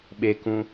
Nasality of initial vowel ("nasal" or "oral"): oral